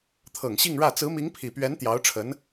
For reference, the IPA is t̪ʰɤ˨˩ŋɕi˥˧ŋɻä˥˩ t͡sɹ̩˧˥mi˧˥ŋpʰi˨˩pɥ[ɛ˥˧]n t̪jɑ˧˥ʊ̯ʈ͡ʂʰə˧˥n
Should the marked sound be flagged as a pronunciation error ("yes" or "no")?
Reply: yes